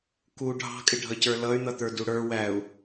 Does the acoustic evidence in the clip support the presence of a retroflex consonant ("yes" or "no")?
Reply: yes